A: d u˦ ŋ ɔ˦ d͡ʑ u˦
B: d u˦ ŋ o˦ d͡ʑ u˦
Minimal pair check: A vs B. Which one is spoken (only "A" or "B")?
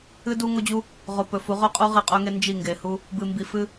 B